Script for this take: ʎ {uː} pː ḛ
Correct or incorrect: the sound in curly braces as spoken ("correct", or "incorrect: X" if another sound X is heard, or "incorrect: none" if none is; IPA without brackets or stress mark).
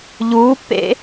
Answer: correct